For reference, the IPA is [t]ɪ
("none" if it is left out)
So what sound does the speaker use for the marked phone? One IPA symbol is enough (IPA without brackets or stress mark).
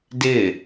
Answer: d